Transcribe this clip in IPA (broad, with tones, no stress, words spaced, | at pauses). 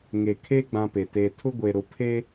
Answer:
ŋe˨ kʰe˦ ɡ͡bã˦pe˨teː˦ tʰʊ˦ɡʷe˨ ɾʊ˨pʰe˦